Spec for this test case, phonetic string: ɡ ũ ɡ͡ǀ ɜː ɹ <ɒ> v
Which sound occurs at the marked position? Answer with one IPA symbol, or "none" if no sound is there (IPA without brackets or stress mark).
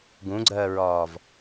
ɒː